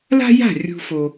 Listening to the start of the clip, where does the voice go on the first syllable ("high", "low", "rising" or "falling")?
high